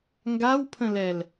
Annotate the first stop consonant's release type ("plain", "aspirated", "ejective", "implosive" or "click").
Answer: plain